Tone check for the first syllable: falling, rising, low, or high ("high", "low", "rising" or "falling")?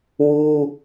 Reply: high